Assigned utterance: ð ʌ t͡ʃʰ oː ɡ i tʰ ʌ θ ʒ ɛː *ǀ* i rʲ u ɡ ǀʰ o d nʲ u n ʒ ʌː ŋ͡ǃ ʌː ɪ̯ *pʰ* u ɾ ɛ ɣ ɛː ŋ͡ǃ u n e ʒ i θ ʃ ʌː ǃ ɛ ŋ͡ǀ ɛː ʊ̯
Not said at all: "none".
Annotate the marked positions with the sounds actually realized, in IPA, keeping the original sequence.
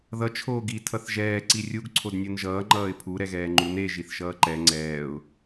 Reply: ǀ, pʰ

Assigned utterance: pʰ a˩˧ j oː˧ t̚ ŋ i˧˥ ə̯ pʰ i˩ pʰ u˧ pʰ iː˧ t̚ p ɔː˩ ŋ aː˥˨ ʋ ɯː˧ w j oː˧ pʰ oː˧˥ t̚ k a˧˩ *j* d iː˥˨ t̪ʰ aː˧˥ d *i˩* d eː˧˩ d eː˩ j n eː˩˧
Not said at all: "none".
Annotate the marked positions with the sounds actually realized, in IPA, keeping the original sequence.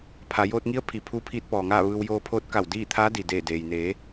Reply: w, i˩

